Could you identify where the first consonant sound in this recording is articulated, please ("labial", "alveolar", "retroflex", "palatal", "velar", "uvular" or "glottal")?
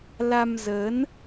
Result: alveolar